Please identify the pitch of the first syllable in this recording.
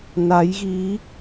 rising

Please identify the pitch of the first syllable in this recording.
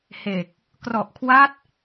low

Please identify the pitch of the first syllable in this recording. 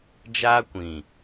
high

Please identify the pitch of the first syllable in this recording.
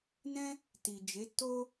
high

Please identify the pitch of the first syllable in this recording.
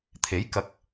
rising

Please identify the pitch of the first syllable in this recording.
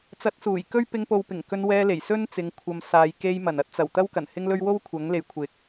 rising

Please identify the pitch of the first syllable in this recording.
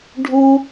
high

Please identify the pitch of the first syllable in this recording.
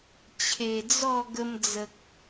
low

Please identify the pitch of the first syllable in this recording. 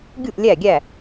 falling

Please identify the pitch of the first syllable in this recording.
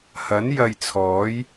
rising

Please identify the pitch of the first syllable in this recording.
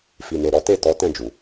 low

